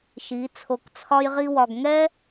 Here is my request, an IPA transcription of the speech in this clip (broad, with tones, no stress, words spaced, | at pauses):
ʃi˨˦ t͡sʰo˧kt͡sʰɒ˦jʁi˦wɒ˧ɡ ŋɛ˦